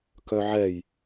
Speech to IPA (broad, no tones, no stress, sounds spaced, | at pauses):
k œ ʕ ɛ j